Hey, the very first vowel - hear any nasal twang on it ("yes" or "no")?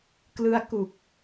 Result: no